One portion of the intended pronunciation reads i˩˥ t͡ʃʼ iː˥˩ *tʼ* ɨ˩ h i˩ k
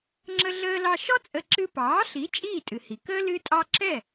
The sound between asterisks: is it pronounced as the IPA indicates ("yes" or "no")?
yes